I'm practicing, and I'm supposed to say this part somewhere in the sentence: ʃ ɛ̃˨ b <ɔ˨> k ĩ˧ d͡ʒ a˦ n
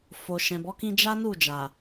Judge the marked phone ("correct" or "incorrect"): incorrect